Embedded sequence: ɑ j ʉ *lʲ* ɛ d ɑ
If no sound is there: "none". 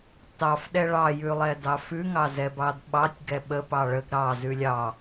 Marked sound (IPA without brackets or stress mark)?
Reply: lˠ